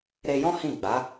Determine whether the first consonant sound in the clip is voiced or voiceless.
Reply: voiced